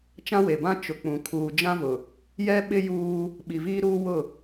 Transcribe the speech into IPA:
t͡ʃ ã˦ w e˨ b ã˦ t͡ʃ ʊ˨ k͡p ũ˨ kʰ uː˨ d͡ʒ ã˦ v ʊ˨ | j ɛ˦ ɓ ɪ˦ j uː˦ | ɓ i˨ v iː˦ ɾ uː˦ w ʊ˦˨

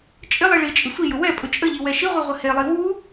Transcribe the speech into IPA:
t͡ʃʼ ɪ lˠ i ɭ i t͡ʃʼ ɪ sʷ i j ʊ w ɛ pʼ ʊ t͡ʃʼ ə ʎ i w ɛ ʃ i ʁʷ i ʁʷ ə h e lˠ i w u

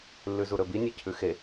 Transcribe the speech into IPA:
lː ʉ z u ɾ ɵ b i nʲ e cʰ ʉ x e

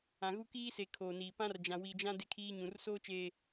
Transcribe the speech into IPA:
ã˨ ɣ u˦ k iː˦ s e˨ kʰ oː˨ n iː˨ p ã˦ r d͡ʒ ã˨ w i˨ d͡ʒ ã˦ d e˦ kʰ iː˦ ɲ ũ˨ r s oː˦ t͡ʃ eː˨

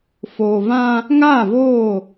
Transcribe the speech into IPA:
f oː˨ v ã˦ | ŋ aː˦˨ v oː˦˨

